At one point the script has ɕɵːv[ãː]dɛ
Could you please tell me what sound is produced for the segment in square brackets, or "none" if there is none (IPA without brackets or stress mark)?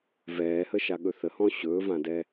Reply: ã